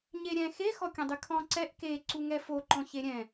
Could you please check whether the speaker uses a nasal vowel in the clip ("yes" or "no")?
yes